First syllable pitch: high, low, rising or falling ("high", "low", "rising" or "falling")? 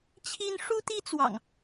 high